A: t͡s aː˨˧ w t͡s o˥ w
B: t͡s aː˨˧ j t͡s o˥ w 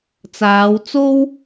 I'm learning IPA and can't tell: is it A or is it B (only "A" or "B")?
A